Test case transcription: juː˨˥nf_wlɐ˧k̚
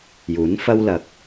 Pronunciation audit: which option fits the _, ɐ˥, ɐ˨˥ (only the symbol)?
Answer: ɐ˥